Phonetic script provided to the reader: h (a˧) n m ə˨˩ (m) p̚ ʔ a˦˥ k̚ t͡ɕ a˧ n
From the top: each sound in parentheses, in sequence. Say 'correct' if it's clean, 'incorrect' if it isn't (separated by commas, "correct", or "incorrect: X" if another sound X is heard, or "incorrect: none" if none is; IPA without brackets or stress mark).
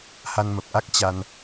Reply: correct, incorrect: none